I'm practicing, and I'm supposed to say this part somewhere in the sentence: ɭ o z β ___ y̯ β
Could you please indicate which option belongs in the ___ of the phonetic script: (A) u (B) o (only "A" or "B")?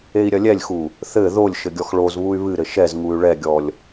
A